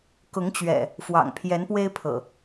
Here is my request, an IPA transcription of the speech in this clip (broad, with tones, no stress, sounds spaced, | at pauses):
k ʊ˨˦ ŋ t͡ɕ ɥ ɛ̰˨˩ | f w ɑ̰˨˩ ŋ pʰ j ɛ˨˦ n p w e˦ ɪ̯ pʰ ɤ̰˨˩